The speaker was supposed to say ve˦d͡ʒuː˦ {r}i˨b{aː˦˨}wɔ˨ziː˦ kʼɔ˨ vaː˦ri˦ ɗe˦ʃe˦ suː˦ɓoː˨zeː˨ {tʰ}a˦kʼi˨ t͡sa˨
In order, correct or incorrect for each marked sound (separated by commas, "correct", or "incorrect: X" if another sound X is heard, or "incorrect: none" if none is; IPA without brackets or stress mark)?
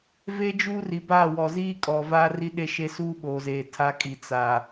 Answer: correct, correct, correct